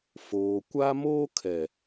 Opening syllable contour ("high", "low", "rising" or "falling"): low